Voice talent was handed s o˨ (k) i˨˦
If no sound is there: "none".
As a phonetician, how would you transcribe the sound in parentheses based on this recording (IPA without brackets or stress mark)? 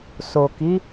k